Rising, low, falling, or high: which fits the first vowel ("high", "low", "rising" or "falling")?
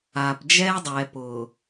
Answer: low